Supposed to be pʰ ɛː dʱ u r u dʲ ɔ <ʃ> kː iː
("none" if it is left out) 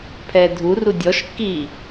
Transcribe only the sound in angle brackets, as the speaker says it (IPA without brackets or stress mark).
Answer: ʃ